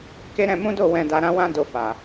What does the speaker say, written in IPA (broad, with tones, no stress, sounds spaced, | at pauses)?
k e˦ ɾ ɛ̃˧ m ũ˦ d o˦˨ w ɛ̃˧ d a˧ ɾ ã˦ w ã˦ d o˦˨ f a˨